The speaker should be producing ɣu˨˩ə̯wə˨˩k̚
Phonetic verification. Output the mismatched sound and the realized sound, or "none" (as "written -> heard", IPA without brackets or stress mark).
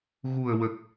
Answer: none